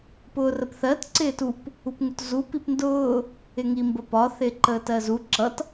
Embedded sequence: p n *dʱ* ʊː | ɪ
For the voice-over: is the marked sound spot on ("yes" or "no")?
no